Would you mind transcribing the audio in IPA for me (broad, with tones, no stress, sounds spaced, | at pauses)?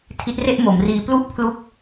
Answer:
tʰ i˦˥ t̚ r e˥˩ ʔ m o˩˦ m r iː˧ p l u˥˩ ʔ pʰ l u˦˥ k̚